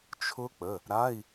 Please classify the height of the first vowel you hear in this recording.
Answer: high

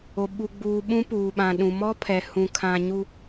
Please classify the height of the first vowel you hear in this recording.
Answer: mid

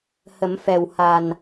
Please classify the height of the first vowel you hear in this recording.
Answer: mid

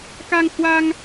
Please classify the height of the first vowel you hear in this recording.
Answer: low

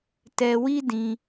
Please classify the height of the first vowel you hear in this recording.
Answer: mid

